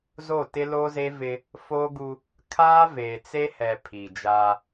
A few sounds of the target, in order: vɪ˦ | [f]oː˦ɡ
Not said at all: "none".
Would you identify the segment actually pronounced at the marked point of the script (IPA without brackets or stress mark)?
f